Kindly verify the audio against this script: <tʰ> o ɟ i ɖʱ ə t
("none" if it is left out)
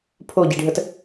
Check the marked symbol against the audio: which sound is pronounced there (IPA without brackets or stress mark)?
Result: pʰ